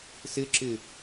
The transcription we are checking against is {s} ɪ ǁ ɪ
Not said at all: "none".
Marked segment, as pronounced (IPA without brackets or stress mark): s